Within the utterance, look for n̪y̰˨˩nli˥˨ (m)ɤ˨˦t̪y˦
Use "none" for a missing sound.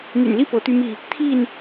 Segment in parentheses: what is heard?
p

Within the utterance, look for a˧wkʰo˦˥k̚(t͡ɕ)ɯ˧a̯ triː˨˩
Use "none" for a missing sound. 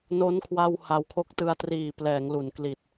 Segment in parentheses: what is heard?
t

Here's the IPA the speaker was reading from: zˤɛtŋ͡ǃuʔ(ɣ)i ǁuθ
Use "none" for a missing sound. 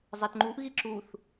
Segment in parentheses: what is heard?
ɣ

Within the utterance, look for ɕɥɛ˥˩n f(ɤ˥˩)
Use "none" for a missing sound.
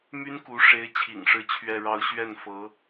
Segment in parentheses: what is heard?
ɤ˧˥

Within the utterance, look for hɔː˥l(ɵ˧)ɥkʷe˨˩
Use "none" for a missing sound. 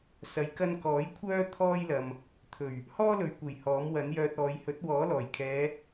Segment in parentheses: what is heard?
ɵ˨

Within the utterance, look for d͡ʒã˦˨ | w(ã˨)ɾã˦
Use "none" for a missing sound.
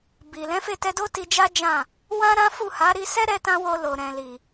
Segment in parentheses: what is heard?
ã˦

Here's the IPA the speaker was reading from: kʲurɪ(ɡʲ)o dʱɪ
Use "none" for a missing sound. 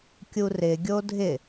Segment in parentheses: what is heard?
ɡʲ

